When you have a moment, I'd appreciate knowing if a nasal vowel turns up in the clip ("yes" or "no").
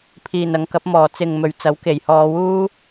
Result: no